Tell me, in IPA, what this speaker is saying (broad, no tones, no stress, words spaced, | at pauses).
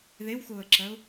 ðewxʊːə̯ǁɜʊ̯